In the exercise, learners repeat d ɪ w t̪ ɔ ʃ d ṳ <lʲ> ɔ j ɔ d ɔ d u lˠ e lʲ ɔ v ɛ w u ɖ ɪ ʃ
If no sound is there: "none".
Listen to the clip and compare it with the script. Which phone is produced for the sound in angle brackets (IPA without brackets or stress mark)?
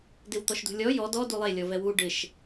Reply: lʲ